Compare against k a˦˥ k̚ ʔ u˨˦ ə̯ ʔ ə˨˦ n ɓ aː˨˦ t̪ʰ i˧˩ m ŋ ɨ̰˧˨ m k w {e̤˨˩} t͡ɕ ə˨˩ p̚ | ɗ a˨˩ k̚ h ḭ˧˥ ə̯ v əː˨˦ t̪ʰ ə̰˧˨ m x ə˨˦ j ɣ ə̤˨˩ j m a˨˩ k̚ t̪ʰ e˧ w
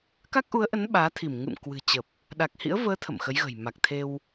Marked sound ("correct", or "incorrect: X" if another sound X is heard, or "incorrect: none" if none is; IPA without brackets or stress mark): incorrect: ɨ̤˨˩